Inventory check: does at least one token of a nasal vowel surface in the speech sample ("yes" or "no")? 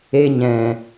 yes